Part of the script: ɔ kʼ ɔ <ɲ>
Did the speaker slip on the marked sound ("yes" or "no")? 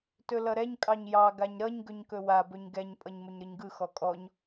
no